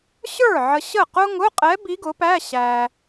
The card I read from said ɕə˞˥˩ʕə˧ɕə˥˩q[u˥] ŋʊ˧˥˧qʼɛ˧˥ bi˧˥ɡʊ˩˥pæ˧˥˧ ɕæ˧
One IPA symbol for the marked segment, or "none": ʊ˥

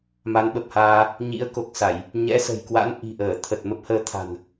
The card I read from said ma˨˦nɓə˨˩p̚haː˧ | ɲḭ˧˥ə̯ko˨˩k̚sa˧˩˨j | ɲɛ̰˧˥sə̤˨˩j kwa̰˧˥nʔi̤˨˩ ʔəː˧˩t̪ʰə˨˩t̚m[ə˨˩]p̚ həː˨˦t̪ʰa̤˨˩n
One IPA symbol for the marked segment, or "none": ə˦˥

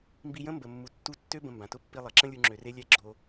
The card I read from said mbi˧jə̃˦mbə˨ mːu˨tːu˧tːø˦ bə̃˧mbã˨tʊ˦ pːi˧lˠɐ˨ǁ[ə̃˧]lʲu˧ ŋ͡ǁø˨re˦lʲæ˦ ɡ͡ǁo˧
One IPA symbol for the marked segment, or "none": ə̃˦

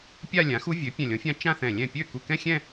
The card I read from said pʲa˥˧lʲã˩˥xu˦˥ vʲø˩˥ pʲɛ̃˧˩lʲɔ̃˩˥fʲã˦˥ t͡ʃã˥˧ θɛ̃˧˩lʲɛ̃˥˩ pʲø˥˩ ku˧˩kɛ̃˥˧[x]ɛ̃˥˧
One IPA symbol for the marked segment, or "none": xʲ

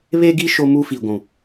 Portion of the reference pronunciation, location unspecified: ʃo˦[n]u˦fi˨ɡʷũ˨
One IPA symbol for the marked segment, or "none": m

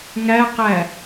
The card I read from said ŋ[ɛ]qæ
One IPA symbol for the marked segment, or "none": æ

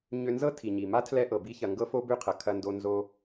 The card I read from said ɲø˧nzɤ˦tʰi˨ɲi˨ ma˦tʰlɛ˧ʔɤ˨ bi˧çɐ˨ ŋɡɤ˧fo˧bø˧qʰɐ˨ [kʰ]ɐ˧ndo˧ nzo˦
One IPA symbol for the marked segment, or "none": kʰ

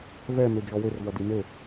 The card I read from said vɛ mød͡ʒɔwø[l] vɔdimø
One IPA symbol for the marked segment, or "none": r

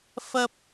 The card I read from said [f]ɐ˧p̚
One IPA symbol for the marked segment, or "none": f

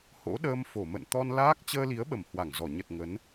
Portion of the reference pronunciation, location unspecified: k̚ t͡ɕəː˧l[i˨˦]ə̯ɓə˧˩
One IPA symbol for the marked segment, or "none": i˨˦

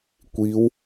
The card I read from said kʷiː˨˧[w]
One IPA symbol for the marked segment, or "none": w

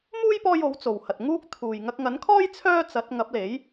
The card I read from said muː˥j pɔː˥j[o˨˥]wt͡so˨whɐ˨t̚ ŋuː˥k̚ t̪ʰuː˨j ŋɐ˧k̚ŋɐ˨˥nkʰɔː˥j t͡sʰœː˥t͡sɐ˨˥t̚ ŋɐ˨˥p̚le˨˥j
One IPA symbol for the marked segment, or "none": o˨˥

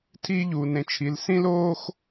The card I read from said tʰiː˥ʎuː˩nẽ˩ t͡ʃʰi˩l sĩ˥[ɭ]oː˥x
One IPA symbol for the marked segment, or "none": l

